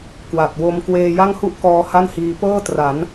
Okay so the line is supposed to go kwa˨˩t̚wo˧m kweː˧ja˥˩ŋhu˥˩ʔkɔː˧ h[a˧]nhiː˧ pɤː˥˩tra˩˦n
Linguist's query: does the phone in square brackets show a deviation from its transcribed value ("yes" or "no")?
yes